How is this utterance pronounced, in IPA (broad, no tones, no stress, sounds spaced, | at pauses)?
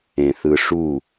ẽ θ ɯ ʂ u